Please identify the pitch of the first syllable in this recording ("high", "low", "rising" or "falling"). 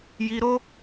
high